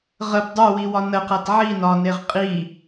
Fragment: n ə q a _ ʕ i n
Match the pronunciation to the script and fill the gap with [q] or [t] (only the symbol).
t